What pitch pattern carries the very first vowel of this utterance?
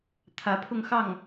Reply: rising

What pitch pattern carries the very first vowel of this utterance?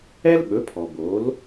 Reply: high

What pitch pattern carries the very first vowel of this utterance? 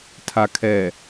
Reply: low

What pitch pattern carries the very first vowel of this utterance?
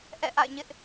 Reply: falling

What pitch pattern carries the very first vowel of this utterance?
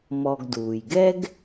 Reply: low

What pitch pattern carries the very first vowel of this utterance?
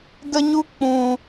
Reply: high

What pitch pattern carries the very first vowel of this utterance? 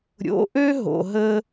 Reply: rising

